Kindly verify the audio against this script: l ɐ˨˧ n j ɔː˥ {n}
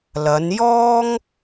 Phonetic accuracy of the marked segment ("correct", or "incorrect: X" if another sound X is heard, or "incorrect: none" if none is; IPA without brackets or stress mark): incorrect: ŋ